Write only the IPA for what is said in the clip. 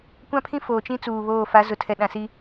kʷã˦pʰĩ˦ foː˨t͡ʃĩ˦ t͡suː˨βoː˦˨ fa˨˦zʊ˨tʰɛ˨ ɗã˨si˦

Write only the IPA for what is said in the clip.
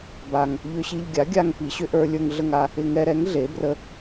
ba˧ŋ | ʎʏ˧ɕi˧ʎɡʲa˩˥ ɡʲa˧ŋ pi˩˥ɕʏ˧ʔə˞˧lʲə˞˧ŋ ɮə˧ŋa˧ | ɪ˧ŋɛ˧ɾɛ˩˥ŋ ɮe˩˥brə˧

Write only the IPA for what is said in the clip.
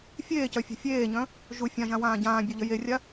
fʲeːcœ fʲɛ̤fʲeːɲœ̃ | ʒu fʲãʒã wãːɟãːbʲo ʎəjerʲa

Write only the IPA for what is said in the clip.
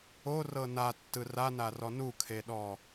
orɤ natːɯ ranarɔ nukʰeɗɔ

